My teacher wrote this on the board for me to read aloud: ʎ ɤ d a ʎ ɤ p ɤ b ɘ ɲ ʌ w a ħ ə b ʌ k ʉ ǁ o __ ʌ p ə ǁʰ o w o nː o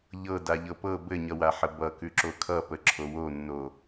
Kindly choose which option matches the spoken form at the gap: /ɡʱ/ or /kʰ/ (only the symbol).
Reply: kʰ